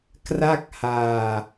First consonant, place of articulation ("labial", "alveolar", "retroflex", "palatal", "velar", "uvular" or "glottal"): velar